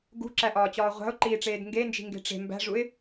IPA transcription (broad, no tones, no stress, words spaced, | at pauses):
ɡṳǁæʔɒːt͡ɕɒː ʁʷæ̤ʊ̯ǃiːʈ͡ʂeːd ŋɡend͡ʒi̤ŋɡe̤ ʈ͡ʂe̤ mbæ̤ʐuɪ̯